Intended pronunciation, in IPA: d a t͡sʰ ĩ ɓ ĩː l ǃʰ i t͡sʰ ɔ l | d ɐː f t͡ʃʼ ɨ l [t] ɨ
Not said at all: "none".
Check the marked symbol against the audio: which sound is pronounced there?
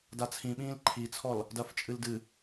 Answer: d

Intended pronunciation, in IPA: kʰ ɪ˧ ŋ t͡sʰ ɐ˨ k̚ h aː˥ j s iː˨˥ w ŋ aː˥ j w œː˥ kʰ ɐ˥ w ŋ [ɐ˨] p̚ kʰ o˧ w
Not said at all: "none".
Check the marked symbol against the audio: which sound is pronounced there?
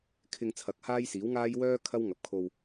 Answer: ɐ˨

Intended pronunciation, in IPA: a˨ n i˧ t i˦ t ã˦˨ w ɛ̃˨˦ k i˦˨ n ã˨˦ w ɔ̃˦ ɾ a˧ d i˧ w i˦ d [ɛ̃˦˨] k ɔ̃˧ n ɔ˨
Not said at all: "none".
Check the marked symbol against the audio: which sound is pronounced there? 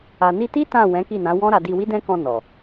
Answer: ɛ̃˦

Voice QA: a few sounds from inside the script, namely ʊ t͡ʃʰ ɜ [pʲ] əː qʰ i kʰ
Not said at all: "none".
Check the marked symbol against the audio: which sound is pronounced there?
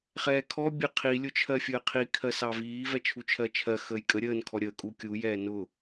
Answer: fʲ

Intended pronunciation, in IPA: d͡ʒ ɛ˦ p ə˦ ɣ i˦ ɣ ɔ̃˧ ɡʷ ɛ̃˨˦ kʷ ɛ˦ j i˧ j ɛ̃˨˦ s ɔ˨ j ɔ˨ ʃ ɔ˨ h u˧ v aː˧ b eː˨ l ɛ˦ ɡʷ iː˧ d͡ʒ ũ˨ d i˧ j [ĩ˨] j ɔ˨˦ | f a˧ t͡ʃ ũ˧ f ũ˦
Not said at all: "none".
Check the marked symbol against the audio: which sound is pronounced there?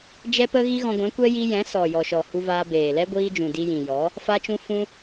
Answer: ĩ˨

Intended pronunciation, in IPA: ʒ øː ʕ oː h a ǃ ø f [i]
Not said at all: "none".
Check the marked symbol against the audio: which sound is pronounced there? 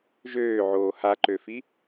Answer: i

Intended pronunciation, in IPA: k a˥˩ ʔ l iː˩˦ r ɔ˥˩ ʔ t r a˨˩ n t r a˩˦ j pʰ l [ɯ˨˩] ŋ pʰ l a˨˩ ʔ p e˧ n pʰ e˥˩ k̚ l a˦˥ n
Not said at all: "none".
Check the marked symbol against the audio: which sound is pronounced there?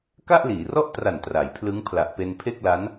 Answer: ɯ˦˥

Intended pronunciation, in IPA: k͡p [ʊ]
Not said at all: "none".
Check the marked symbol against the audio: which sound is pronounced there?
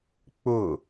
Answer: ʊ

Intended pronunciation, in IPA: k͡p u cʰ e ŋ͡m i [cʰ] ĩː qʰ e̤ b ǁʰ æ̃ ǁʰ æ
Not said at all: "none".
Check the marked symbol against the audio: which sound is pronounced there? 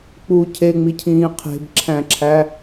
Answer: cʰ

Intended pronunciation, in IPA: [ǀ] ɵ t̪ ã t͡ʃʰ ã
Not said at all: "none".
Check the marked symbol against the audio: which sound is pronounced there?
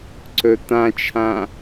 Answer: ǀ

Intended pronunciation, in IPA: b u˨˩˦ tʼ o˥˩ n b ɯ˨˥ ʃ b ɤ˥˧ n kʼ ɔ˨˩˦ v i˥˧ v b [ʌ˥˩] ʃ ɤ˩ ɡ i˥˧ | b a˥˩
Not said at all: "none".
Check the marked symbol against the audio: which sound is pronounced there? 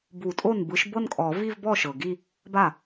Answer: ɔ˥˩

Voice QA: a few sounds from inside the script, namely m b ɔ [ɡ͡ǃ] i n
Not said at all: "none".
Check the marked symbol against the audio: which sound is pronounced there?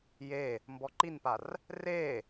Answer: ǃ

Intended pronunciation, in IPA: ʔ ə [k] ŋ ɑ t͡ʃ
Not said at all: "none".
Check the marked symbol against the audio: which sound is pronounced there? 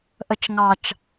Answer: t͡ʃ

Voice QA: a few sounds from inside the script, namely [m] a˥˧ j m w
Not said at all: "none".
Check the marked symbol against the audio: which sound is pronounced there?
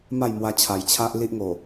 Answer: m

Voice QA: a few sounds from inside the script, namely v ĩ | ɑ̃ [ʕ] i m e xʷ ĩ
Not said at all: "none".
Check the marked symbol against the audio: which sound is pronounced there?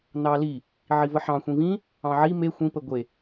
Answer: ʕ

